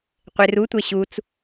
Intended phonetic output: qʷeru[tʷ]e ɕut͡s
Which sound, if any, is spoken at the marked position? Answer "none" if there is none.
tʷ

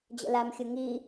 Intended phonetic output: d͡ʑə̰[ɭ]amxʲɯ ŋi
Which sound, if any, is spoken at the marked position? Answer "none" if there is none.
l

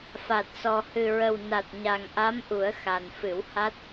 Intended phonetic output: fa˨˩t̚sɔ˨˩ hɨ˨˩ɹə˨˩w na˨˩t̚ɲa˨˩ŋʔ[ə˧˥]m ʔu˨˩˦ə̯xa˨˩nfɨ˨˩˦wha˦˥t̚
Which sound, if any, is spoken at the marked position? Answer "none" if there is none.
a˧˥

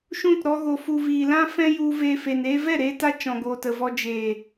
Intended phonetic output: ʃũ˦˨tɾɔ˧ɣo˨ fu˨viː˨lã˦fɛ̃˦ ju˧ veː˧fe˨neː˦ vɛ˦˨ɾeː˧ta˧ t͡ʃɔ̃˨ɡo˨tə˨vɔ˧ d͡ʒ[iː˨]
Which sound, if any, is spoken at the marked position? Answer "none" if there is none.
eː˨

